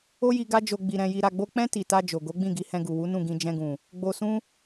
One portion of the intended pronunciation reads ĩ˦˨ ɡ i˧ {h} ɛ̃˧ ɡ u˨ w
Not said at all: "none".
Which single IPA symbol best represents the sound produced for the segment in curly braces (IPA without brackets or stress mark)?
h